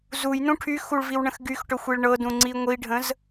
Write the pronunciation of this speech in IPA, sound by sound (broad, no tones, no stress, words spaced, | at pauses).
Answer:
zujnũ ʈʰyxuɭviwɳə̃x ɡyxʈɵxʷiɭ ɳɤdũŋ͡ǀi ŋʷiɖʱə̃z